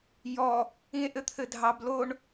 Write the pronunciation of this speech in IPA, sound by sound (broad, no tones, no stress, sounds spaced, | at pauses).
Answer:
j ɔ | ĩ e̯ ʔ ɘ t̪ʰ ɘ dʱ ɑ b l o ɳ